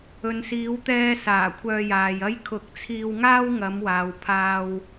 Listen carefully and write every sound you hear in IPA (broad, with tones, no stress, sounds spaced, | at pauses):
ɵ˨ n s iː˨˧ w t̪ ɛː˧ s aː˨˩ kʷʰ œː˧ j aː˨ j ɐ˥ j kʰ ʊ˨˥ k̚ t͡sʰ iː˧ w ŋ aː˥ w ŋ ɐ˨˧ m w aː˨ w pʰ aː˧ w